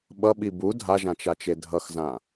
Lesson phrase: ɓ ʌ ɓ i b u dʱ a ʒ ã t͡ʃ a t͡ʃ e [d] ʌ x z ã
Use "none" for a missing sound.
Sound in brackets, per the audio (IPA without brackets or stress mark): dʱ